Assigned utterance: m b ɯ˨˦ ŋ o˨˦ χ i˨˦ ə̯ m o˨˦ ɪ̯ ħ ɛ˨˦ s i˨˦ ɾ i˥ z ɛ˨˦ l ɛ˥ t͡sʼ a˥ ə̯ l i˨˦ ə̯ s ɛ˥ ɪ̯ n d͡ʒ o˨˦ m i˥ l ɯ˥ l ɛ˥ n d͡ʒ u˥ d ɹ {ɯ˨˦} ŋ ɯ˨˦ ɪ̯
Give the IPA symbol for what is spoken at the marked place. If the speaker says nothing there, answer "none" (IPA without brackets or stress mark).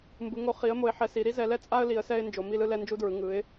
ɯ˨˦